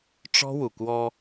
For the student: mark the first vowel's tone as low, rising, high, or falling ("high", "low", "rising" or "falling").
high